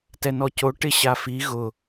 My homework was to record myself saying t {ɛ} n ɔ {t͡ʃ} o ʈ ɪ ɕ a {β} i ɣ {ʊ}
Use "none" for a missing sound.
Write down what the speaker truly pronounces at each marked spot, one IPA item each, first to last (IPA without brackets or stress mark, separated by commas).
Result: ɛ, c, f, ʊ